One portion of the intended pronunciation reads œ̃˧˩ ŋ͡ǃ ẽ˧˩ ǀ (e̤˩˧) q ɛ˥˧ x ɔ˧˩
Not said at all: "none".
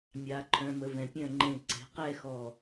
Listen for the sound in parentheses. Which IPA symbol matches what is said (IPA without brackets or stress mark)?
e̤˩˧